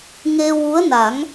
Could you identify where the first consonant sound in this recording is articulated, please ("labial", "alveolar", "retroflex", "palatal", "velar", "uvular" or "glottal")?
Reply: velar